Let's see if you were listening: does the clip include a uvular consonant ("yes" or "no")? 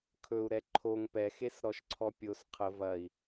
yes